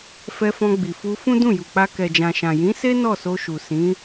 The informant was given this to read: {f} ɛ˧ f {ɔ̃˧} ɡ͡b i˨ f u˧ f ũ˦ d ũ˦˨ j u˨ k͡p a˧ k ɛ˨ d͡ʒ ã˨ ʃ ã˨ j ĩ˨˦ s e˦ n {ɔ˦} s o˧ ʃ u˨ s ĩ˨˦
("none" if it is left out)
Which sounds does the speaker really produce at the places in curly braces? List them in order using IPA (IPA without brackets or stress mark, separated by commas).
f, ɔ̃˧, ɔ˦˨